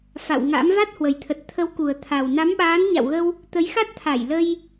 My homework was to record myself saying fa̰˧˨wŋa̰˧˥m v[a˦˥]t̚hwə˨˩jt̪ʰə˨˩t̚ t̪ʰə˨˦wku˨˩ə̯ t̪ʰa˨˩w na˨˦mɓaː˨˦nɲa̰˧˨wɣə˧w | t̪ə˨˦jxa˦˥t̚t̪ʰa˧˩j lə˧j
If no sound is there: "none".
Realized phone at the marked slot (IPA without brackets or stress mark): a˦˥